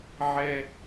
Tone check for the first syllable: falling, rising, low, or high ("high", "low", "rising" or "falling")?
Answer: high